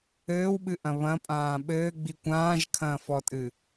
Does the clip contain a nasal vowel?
yes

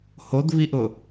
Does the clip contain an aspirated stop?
no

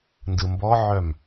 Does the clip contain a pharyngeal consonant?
yes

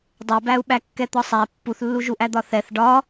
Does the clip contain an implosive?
yes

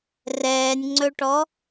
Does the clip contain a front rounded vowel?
no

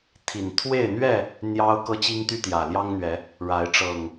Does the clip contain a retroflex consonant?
yes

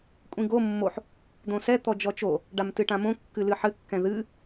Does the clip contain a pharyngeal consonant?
yes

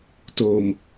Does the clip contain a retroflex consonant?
no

